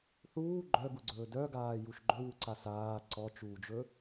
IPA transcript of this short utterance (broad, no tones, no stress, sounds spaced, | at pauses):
θ uː ɡ͡ǃ œ ɡ u ɡ͡ǀ ɵː d œ ɡ aː j u ʃ ɡ͡ǃ ɵ w u ǀ a s aː ǀ ɔ t͡ʃ uː d͡ʒ ɵ